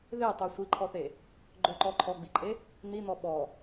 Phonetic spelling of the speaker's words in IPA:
ð e tˤ ɵ sʷ i ǃʰ ɔ θ e | ɡ͡ǃ ɵ ǃ ɔ ǃʰ ɔ ɡ͡b i ǃʼ e | n̪ i n̪ ɔ ɓ ɔ

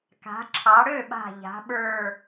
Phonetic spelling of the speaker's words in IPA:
k a̤˩˧ ǁʰ ɑ˩˧ ɽ ø˥˩ ɓ a̤˧˩ ʎ a̤˩˧ ɓ ə˞˧˩

